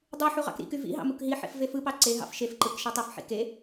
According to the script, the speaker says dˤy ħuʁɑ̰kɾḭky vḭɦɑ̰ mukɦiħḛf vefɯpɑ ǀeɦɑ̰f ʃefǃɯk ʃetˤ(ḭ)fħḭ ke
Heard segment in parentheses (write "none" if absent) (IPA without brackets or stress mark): i